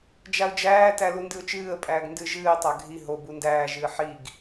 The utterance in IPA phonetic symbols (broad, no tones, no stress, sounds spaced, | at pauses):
d͡ʒ a ʊ̯ d͡ʒ æː t æ l u n d ɨ ʊ̯ t͡ʃ ɨː ə̯ pʼ æː ɡ n d ɨ ʒ ɨː ɪ̯ tˤ a ɡʱ i ɦ o b u n d æː ʒ ɨː ħ i ɡ